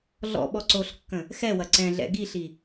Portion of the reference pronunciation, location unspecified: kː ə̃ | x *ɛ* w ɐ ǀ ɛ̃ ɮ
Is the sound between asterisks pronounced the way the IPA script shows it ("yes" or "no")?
yes